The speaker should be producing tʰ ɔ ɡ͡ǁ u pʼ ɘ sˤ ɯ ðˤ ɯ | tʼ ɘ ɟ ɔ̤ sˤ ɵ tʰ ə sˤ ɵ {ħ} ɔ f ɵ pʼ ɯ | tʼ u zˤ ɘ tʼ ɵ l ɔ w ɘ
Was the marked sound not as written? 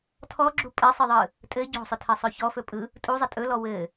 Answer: yes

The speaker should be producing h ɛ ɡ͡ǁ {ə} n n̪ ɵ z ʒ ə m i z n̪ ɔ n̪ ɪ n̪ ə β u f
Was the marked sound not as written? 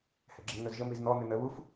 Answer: no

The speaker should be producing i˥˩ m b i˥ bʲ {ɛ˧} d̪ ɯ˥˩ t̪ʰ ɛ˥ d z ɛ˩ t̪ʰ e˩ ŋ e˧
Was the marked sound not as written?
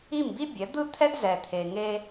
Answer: yes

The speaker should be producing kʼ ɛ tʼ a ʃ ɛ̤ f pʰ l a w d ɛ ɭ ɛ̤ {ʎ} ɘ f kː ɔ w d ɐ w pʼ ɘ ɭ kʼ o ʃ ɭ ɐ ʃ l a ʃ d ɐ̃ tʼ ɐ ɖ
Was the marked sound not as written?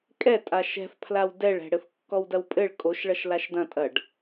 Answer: yes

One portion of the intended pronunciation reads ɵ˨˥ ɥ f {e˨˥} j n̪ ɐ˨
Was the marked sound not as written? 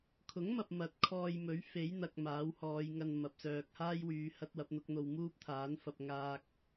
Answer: no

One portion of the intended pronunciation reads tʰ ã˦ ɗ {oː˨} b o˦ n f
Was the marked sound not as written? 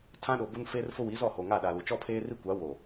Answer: yes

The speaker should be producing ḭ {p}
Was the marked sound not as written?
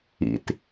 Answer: yes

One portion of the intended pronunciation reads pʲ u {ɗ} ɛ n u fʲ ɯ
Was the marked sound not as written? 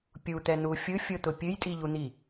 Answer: yes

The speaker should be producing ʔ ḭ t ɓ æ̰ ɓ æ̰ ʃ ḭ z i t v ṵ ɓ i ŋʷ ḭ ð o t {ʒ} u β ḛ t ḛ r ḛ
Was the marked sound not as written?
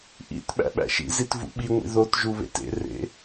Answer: no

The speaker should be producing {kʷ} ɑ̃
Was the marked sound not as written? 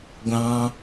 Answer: yes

